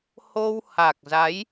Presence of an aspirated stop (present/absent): absent